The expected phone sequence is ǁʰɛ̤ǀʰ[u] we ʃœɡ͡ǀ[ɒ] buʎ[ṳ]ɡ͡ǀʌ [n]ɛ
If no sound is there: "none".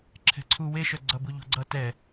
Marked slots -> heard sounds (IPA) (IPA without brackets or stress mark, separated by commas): u, ʌ, o̤, t